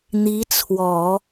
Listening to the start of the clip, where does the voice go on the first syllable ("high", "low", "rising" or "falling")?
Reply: rising